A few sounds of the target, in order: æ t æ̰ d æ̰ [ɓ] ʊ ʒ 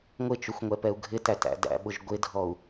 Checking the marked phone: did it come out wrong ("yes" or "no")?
no